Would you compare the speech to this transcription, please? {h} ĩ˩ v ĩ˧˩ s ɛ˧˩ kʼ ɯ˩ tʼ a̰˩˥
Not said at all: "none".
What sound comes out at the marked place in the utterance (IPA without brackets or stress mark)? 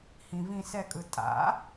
h